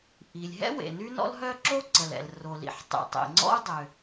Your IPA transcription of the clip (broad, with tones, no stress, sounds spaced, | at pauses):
ʔ i˩ lʲ ɦ ɛ̰˥ w ḛ˩ n y˥ n ɔ̰˥ l ɦ œ˥ ǁ o˥ ǀ ə˩ l ɛ̰˩ l r o˩ l ḭ˩ ħ tˤ ḭ˩ tˤ ḛ˩ ŋ͡ǀ ɔ̰˥ u̯ dˤ ø˩